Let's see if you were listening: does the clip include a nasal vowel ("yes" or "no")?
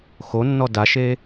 no